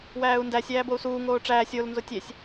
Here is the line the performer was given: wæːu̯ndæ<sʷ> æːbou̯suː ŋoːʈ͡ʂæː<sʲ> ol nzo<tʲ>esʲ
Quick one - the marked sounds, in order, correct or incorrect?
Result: incorrect: sʲ, correct, correct

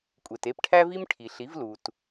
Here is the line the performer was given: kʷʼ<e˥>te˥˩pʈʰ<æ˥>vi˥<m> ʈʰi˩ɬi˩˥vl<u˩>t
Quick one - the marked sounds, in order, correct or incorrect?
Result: incorrect: e˩, correct, correct, correct

